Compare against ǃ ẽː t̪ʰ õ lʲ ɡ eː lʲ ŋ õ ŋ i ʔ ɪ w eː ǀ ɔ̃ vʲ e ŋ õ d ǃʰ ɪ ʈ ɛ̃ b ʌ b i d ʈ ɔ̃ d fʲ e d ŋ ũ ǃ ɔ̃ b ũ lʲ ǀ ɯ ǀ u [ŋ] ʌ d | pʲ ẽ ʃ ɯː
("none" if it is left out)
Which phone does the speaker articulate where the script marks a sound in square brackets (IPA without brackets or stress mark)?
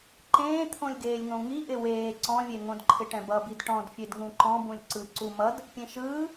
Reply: m